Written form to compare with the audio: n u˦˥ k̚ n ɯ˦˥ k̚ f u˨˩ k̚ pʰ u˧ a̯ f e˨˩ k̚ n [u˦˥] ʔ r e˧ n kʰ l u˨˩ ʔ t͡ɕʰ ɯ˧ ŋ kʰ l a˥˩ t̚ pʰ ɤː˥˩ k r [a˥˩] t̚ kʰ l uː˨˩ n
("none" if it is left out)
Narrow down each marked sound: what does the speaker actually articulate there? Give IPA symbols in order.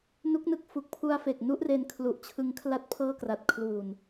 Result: u˦˥, a˨˩

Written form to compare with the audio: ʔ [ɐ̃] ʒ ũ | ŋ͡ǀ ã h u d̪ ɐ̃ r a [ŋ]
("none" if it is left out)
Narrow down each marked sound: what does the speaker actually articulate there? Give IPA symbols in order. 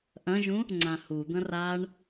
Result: ɐ̃, ɳ

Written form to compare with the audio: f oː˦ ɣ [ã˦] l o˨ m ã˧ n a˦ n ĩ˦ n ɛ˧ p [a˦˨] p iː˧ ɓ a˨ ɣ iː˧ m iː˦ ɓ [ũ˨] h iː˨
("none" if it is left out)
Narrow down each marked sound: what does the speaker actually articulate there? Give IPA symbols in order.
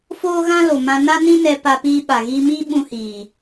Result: ã˦, a˧, ũ˧

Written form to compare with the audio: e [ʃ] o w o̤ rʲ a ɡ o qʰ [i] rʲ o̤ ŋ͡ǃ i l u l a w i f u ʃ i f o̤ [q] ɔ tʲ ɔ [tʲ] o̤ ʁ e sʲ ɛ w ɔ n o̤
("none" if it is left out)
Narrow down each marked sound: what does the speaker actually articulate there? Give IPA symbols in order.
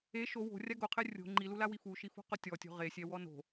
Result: ʃ, ɪ, q, tʲ

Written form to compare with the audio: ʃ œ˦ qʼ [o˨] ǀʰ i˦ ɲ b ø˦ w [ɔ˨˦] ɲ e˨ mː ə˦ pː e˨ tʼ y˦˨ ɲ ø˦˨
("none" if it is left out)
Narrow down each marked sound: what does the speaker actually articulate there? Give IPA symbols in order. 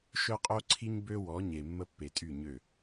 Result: o˦, ɔ˨˦

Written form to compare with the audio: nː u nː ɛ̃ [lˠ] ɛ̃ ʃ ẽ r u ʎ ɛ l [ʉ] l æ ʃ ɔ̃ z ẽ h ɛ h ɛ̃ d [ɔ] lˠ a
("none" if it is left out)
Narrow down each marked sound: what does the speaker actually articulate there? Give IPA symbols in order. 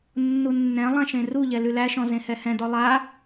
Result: lˠ, ʉ, ɔ

